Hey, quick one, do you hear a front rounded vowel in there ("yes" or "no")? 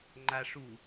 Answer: no